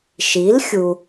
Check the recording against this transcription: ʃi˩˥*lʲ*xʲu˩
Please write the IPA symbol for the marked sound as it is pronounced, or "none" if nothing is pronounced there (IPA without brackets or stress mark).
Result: l